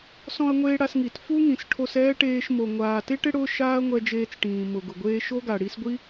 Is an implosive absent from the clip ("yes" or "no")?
yes